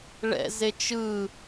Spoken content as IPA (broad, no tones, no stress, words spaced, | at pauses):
ɭɛ̰ zet͡ʃɯ